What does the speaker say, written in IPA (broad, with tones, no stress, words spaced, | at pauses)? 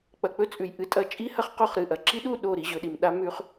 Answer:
k͡pɐ˨k͡pɵ˦ t͡sʼʉ˨jʔɨ˧ tʼɐ˧ t͡ʃʼi˦hɐ˦χ qo˦˨χɾɨ˨ʔɐ˨ ǁi˦ ɗu˦˨ ɗo˦˨ɾi˧ ʑɵ˨ɗi˨m ɗa˦mʉ˧χ